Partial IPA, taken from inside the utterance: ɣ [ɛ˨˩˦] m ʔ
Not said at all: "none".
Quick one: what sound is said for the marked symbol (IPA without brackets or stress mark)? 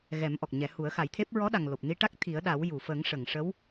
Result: ɛ˨˩˦